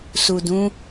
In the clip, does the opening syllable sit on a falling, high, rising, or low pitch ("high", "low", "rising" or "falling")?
low